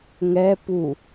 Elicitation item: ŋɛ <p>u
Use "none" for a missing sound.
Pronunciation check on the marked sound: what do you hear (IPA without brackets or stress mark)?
p